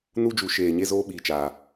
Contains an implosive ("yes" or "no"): yes